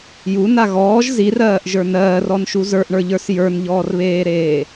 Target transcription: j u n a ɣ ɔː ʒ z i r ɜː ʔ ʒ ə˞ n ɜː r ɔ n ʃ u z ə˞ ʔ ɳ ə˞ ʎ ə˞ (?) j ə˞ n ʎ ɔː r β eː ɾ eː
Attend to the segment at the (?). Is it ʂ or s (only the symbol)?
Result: s